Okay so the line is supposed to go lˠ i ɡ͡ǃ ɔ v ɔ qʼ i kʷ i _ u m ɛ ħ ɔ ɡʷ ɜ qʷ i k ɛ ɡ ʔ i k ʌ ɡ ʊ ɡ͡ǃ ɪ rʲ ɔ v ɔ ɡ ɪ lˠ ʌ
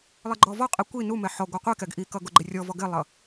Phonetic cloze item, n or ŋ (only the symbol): n